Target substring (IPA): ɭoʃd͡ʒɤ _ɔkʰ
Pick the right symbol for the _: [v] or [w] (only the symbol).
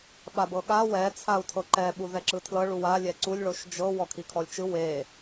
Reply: w